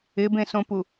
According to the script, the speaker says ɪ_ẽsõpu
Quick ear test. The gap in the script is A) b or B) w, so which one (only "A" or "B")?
A